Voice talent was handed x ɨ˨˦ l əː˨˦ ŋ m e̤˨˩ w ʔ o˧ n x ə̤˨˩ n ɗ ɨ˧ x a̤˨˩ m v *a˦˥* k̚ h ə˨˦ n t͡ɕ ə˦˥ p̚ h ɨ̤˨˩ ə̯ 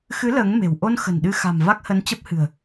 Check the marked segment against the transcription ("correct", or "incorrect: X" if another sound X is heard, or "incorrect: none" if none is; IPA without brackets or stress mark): correct